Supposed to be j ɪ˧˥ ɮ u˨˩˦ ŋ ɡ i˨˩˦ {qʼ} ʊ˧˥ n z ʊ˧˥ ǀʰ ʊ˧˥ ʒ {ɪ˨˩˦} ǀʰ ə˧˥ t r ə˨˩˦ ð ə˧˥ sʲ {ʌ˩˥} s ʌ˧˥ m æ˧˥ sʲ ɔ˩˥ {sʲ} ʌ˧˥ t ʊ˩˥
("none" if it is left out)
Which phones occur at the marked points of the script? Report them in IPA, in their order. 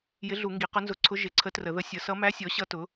q, ɪ˨˩˦, ʌ˩˥, ɕ

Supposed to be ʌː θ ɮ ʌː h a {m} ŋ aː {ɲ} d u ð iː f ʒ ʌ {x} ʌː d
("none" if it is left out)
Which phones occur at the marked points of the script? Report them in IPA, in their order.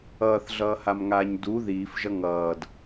m, ɲ, ŋ

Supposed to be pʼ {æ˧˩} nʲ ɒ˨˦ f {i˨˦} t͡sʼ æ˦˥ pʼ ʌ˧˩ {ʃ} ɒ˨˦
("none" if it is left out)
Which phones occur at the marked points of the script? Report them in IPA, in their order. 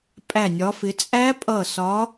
æ˧˩, ɪ˨˦, s

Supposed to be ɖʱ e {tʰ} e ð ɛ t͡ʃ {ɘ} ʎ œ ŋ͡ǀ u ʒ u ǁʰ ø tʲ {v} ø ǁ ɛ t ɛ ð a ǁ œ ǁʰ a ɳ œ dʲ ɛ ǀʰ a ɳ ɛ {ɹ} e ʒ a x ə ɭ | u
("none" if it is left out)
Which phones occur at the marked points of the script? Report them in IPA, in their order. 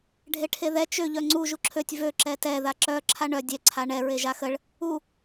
ʈʰ, ø, v, ɹ

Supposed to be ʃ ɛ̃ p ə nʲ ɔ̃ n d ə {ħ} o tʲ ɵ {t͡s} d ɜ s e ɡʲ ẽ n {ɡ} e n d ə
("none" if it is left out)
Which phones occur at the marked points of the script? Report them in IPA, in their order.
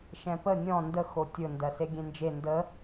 x, n, d͡ʒ

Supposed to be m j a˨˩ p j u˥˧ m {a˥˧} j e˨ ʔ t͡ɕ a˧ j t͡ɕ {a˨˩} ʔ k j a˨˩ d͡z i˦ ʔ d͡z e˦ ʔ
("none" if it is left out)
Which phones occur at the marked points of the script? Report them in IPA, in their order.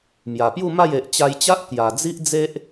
a˥˧, a˦

